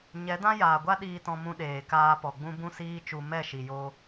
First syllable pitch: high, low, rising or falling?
rising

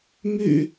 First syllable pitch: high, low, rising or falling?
low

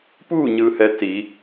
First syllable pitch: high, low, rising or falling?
falling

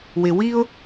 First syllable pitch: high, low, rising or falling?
low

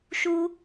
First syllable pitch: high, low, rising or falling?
high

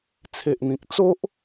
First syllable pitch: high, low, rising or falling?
low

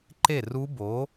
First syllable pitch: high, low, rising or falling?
falling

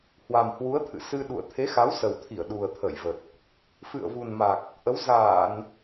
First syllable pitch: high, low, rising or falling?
low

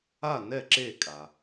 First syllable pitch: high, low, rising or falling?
falling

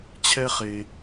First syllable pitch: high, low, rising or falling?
high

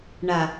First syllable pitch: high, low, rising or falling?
low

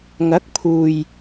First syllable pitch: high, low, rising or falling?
rising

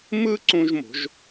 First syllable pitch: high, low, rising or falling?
high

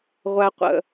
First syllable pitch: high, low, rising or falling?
low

